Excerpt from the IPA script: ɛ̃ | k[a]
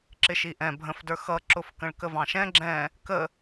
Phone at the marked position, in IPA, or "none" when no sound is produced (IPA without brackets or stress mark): ə